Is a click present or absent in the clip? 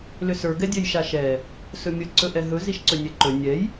present